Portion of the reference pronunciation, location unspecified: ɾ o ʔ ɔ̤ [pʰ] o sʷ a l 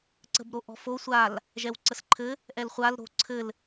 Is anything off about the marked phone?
yes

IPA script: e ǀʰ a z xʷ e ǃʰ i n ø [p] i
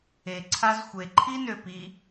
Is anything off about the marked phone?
no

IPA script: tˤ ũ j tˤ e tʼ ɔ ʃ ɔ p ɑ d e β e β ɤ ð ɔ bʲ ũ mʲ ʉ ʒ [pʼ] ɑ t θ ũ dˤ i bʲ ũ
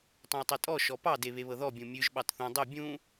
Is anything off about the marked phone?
yes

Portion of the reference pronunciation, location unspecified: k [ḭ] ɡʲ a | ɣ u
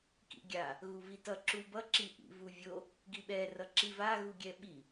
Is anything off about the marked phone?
no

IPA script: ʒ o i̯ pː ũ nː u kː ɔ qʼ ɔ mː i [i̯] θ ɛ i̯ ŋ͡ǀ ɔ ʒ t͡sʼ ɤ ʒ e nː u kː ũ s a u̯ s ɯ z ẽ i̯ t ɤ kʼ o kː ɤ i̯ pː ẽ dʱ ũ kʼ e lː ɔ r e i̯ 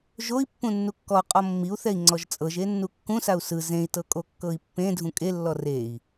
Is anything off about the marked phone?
yes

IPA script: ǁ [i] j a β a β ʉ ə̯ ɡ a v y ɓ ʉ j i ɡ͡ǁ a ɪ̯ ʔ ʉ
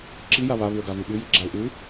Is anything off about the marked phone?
no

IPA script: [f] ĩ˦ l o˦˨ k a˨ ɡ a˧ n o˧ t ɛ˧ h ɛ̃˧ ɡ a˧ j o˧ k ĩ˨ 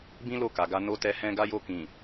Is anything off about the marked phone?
yes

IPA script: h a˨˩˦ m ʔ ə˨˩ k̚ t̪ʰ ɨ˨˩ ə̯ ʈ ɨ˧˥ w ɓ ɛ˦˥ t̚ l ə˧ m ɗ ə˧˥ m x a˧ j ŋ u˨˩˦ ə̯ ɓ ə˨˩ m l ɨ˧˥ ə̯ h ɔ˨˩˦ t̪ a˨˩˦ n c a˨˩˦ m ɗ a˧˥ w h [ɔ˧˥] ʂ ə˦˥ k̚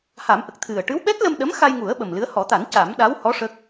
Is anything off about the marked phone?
no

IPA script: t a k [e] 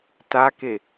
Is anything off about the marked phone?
no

